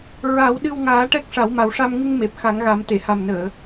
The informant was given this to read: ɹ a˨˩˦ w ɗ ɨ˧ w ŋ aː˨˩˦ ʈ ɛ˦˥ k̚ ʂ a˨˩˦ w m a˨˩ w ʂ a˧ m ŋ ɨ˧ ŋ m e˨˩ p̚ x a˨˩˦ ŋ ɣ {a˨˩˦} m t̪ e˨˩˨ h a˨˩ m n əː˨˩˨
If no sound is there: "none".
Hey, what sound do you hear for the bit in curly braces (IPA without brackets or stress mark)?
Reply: a˨˩˦